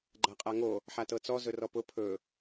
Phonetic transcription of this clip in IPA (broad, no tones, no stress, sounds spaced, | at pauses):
ɡ͡ǃ a qʼ a ŋ o | ħ a t ɤ t͡s ɔ z ɵ r ɔ p ʊ pʰ ɵ